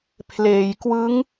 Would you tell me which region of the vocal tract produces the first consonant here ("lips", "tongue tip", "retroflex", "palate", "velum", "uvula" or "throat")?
lips